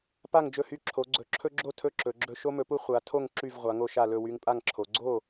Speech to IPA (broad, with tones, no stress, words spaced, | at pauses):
pa˥˨ŋd͡ʒɵ˥˨hy˥˨ ǁʰo˨˦ɡ͡ǀɵ˨˦ ǁʰɵ˦ɡ͡ǁo˥˨ tʰɵ˥˨ǁɵ˨˦ɡ͡ǁɵ˦ ʃo˦mɵ˨˦pu˦ χʷa˨˦ tʰo˥˨ŋ ǁy˥˨v ʁʷa˨˦ŋo˥˨ʃa˥˨ lɵ˥˨wy˦ŋpʼa˥˨ŋǁʰo˨˦ ɡ͡ǀo˥˨